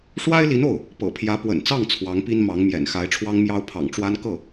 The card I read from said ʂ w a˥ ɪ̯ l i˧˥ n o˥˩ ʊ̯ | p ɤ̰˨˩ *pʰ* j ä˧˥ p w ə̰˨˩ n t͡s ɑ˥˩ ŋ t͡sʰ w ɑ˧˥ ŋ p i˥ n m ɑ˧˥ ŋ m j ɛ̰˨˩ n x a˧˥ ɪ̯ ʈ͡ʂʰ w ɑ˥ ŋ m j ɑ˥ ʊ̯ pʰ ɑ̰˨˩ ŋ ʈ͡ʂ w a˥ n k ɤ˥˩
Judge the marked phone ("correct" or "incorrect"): correct